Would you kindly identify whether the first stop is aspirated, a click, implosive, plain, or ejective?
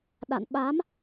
implosive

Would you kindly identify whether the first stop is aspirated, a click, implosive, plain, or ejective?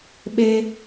implosive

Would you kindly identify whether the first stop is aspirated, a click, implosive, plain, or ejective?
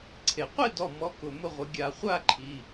click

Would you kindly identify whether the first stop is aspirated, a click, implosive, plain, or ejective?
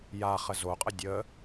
ejective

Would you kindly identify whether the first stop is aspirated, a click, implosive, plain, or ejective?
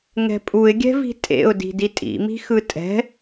ejective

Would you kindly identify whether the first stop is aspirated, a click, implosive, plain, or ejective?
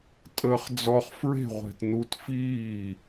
ejective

